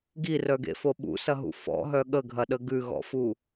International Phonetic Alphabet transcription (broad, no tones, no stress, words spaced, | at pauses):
ɡirœɡḛfo ɓṵsɐɦṵ fɔ̰ɦœ ɠəɡʱɐɗə ɡʉɣɔ̰fu